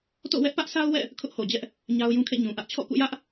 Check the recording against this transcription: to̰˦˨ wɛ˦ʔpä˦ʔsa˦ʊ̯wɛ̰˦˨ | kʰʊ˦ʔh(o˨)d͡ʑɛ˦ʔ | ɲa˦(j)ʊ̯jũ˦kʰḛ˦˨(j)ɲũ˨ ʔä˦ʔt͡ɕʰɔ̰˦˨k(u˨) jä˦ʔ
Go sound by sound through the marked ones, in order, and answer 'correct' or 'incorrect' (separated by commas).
correct, incorrect, incorrect, incorrect